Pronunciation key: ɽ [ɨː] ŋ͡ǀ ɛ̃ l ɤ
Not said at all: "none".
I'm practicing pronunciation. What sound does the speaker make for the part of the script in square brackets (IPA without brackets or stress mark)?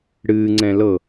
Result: ɨː